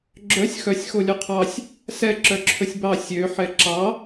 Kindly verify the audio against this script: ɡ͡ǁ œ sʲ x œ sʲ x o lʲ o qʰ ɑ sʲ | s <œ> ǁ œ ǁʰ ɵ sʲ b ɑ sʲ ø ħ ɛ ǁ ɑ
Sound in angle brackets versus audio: incorrect: ɛ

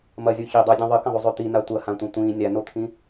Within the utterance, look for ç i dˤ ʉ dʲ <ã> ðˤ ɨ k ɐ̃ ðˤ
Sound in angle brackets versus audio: incorrect: ɐ̃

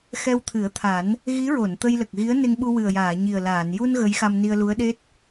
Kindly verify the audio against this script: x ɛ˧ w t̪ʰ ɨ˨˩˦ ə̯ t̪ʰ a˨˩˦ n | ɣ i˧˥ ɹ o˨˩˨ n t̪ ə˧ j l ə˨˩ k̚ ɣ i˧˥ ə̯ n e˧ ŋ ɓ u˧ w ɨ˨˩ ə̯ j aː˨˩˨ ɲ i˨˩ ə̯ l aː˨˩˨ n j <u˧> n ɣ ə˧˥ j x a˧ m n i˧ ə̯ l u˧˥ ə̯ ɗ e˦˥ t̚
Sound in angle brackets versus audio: correct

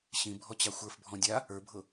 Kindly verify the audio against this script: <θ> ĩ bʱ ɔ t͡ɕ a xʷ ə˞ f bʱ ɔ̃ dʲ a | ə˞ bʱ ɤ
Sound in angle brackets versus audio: incorrect: ɕ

